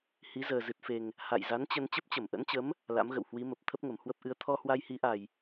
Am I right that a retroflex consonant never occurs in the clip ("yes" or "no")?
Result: yes